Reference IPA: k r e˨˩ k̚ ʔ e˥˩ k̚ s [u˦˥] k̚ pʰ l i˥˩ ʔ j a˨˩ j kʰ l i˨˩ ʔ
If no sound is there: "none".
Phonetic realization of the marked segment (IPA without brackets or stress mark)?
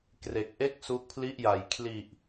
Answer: u˦˥